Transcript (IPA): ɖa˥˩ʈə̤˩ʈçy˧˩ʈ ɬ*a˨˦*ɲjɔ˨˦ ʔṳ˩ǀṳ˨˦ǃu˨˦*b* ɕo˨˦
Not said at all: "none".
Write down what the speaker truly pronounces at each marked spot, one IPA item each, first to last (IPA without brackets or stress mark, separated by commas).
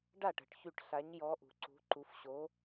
a˨˦, f